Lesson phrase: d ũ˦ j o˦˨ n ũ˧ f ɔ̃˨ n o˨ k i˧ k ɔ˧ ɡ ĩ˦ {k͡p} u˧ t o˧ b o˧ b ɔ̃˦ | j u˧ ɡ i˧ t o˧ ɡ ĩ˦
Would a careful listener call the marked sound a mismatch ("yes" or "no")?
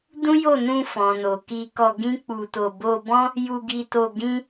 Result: no